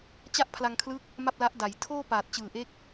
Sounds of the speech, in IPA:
t͡ɕ a˥˩ ʔ pʰ l a˧ ŋ kʰ l ɯ˦˥ k̚ | m a˥˩ p̚ l a˦˥ ʔ d a˩˦ j tʰ oː˥˩ p aː˨˩ t̚ t͡ɕ ɯː˨˩ ʔ e˦˥ k̚

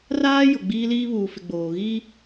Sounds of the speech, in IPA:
r aː˦ j ʊ˨ ɡ͡b iː˦ l iː˦ β uː˨ f ɪ˨ ɡ͡b oː˨ ɣ iː˦

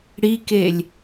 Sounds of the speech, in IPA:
ɽ i k e lʲ

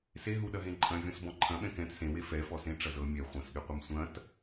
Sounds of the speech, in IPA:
s e ɦ u ɗ ɐ ɦ ẽ ǃʼ ɐ̃ vʲ ɔ̃ s b ɔ̃ ǃʰ ɐ̃ ɓ ɛ̃ k ɛ̃ t s ẽ w e f ɛ f ɔ s ẽ ʈ͡ʂ ɐ z ɤ mʲ ɛ χʷ ɐ̃ s ɠ e qʷ ɐ m sʷ ɐ̃ t

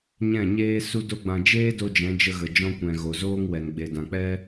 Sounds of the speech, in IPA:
ɲ ɛ̃˦˨ ɲ eː˦ s u˦ d o˦ ɡ͡b ã˧ d͡ʒ eː˦ d o˧ d͡ʒ ɛ̃˨˦ d͡ʒ ə˧ ɣ ə˨ d͡ʒ ɔ̃˧ kʷ ɛ̃˨ ɣ o˨ z oː˦ ŋ w ɛ˨ n ɡ͡b e˨ d ã˨ k͡p ɛ˦

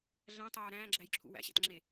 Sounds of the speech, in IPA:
ɮ æ̃ tˤ oː ɾ æ̃ː ɡ͡ǁ æ j ǁʰ ṵ w æ̰ ɕ æ̰ t ŋ͡ǁ e

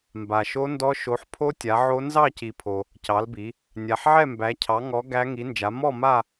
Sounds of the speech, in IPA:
m b a˨ ʃ o˦˥ n d ɔ˦˥ ʃ o˨˦ ħ pʰ o˦˥ tʲ a˨˦ ʕ o˦˥ n z ɑ˥˧ c i˨ pʰ o˨ | c ɑ˨˦ l b i˨˦ | nʲ a˨ ħ ʕ ɛ˥˧ m b æ˨˦ cʰ ɑ˨˦ ŋ ɔ˨˦ ɡ æ˦˥ ŋ i˨˦ n d͡ʒ a˨˦ m ɔ˥˧ m a˥˧

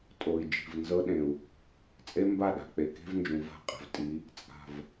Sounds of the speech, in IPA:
tʼ o˨ i̯ d͡ʒ i̤˨ v n z ɤ˦ ɗ ẽ˨ u̯ | t͡sʼ e˦ m b a˦˨ ɗ a̤˨ k͡p e˨ k e̤˦ v n d͡ʒ ũ˨ v a̤˦˨ qʼ e̤˨ v tʼ i˨˦ | t͡sʼ a̤˨ v

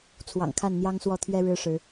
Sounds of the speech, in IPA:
t͡sʰ w ɑ̰˨˩ ŋ kʰ a˥˨ n n̪ j ɑ˦ ŋ s w ɔ˥˨ t̪ʰ ɥ ɛ˦ ɻ ɻ̩˦ ʂ ɻ̩˨˦

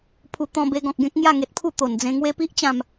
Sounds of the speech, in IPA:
pʰ u˧ t̪ ɔ̃˧ b e˧ ɡ ɔ̃˨ k̚ ɡ ẽ˦ k̚ ŋ j a˥˧ ŋ e˨ t̚ pʰ u˥˧ t̪ o˨˩ n d͡z ẽ˧ ŋ w e˦ p i˦ ʔ t͡ɕ ã˥˧ m

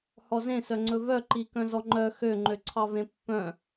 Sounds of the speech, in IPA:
h ɔ z ẽ s œ ŋ͡ǀ ɵ v œ ǃ i k œ̃ z ɔ ŋ͡ǃ œ x ø ŋ͡ǃ ø ǀʰ ɑ v ẽ pː œ̃

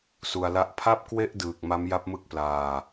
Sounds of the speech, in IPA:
s u˧ a̯ l a˥˩ ʔ pʰ a˥˩ p̚ k w e˥˩ ʔ d ɯː˨˩ k̚ m a˦˥ m j a˦˥ p̚ m ɯ˦˥ k̚ p l aː˧

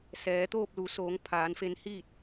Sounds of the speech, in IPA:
s ɛː˩˧ t̪ oː˥˨ p̚ l u˩˧ s oː˩˧ ŋ pʰ aː˩˧ n f e˧ n h iː˥˨ t̚

